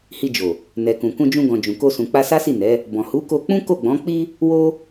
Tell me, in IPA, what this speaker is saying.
h i˧ d͡ʒ o˨ | n ɛ˨ k ũ˨ k ũ˧ d͡ʒ ũ˧ ɡ ɔ̃˨ d͡ʒ ũ˨ k o˧ s ũ˨ k͡p a˧ s a˦ s i˦˨ n ɛ˨˦ | b ɔ̃˨ h u˨˦ k o˧ k͡p ũ˦ k o˦˨ ɡ͡b ɔ̃˨˦ k͡p i˦ | w o˦

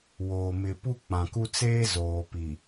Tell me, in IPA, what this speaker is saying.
w o˨ m ɪ˨ p u˦ k͡p ã˨ k u˦ t͡s eː˦ z oː˨ p i˨

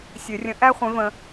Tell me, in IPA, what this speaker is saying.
sʲ ø˨˩˦ rʲ ə̃˨˥ ʔ æ˥ χʷ ẽ˨˥ v ə̃˧

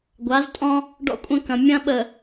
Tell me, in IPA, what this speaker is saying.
ɡʷ a˨˦ z tʼ ɔ̃˦ | ɖ ɔ̰˦ kʷʼ ɐ̃˦ k ɐ̃˨ mʲ ɐ̃˦ ɓ ə˨

